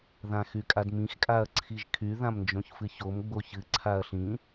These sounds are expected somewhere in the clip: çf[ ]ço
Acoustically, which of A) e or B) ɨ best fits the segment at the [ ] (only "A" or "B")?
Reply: B